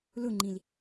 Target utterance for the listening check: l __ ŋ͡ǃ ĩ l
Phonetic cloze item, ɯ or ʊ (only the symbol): ʊ